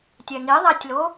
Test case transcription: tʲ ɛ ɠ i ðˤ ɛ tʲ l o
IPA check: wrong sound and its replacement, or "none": ɠ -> ŋ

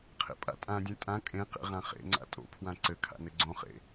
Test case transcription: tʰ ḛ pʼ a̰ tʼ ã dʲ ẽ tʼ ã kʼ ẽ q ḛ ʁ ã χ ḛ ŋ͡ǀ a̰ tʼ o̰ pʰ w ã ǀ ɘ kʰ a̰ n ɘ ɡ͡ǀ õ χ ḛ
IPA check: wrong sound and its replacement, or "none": tʰ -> qʰ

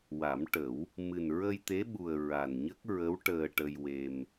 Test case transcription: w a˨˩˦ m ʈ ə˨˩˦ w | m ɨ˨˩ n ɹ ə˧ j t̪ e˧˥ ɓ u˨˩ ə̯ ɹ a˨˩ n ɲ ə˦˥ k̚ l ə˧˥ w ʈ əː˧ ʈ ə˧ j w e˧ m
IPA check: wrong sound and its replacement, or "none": l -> ɹ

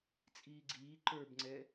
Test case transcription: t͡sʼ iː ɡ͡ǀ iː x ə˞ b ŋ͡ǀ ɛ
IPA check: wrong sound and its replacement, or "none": x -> ǃ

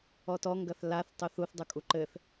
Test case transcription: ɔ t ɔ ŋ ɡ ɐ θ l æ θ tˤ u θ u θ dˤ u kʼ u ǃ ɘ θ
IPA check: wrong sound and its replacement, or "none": æ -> a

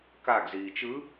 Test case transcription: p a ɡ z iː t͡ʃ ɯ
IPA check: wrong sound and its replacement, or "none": p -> k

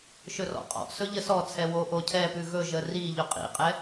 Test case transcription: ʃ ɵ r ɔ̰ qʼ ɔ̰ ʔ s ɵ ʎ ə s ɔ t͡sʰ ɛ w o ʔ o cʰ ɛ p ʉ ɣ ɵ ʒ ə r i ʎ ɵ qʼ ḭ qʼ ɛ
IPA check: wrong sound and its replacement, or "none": none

